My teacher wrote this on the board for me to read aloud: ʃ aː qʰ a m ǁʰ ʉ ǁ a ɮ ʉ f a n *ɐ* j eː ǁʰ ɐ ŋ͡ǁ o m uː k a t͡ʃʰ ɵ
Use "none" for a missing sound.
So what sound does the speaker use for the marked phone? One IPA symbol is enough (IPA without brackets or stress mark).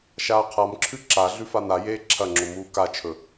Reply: a